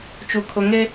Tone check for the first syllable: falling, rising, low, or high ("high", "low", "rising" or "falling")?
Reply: low